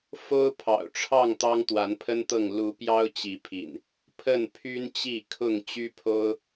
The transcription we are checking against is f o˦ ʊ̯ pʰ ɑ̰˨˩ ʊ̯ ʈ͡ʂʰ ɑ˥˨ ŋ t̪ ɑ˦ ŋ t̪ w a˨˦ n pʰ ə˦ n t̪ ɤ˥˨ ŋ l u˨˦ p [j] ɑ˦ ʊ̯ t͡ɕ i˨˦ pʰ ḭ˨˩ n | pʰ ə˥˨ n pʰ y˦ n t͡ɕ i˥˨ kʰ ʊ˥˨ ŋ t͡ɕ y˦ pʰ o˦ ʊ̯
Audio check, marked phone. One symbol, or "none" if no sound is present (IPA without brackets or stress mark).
j